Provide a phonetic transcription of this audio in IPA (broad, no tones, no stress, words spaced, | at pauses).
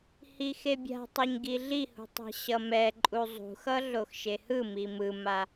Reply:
hixebʲa̤tˤɯɲ ɡiɮihṳtˤɛ̤ ɕʌmɛǃʼu zˤṳxʌ ɮoxʃehɯ mimɯma